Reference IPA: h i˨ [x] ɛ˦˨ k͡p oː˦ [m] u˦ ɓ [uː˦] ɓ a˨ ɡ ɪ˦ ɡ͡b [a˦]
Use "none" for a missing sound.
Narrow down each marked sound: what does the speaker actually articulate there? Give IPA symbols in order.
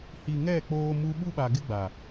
ŋ, m, u˦, a˨

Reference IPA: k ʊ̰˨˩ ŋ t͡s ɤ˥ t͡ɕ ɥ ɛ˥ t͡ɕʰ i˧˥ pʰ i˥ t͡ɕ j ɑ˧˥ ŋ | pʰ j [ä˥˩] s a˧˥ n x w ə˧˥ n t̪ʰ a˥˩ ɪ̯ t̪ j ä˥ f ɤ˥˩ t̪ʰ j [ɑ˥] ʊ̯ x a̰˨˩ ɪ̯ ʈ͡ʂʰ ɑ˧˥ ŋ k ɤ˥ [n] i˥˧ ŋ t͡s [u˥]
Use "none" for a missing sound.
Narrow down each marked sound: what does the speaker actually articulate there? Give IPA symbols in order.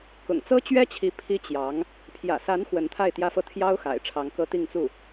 ä̰˨˩, ɑ˥, t̪, u˥˩

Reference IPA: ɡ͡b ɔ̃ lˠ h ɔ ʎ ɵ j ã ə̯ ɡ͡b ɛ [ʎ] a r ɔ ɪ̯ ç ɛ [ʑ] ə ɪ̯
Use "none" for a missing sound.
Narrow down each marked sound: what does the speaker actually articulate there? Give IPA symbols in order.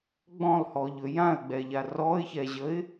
ʎ, ʑ

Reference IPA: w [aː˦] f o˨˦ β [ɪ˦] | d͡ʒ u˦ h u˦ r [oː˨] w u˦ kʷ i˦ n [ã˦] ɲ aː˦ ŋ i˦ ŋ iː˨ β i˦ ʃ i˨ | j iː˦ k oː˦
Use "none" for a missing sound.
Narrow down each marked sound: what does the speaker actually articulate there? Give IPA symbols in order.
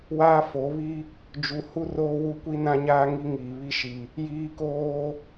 aː˦, i˦, oː˦, ã˦

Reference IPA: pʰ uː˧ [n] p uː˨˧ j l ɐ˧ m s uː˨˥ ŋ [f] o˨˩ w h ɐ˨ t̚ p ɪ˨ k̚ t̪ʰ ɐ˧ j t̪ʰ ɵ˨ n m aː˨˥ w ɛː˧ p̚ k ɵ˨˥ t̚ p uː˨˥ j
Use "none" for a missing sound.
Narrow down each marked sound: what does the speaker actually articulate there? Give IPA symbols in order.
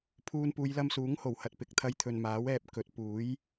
n, h

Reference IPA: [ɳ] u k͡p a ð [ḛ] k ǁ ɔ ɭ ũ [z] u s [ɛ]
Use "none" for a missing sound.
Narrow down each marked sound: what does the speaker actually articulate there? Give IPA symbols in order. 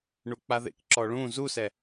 ɳ, ḛ, z, ɛ

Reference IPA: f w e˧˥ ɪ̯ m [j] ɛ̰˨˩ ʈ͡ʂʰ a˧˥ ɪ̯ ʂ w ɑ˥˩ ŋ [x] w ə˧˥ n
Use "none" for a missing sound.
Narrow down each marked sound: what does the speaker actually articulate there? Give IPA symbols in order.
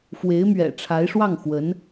ɥ, x

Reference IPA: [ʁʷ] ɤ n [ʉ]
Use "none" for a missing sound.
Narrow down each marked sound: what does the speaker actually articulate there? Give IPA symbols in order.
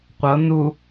qʷ, u

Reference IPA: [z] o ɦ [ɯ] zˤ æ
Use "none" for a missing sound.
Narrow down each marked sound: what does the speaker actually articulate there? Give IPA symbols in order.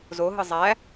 z, ɯ

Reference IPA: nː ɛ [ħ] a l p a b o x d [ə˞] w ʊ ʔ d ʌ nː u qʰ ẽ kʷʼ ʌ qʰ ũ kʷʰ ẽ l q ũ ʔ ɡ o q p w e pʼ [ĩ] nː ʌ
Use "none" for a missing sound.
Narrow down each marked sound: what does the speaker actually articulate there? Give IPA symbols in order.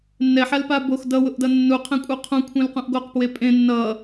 ħ, ʌ, ẽ

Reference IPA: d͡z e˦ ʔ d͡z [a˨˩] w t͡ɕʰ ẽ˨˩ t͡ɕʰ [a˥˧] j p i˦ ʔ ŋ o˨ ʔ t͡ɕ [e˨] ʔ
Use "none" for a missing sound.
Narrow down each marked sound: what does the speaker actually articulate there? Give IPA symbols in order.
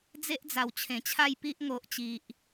a˨˩, a˥˧, i˨

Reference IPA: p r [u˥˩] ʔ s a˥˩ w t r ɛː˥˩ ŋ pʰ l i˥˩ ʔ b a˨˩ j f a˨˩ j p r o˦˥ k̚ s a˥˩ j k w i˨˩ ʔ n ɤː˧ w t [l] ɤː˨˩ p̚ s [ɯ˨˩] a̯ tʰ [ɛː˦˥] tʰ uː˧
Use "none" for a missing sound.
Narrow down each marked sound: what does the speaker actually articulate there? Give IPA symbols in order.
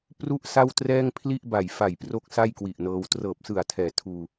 u˥˩, r, ɯ˨˩, ɛː˩˦

